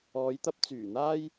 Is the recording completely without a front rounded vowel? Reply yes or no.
no